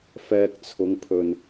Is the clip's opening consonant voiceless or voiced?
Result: voiceless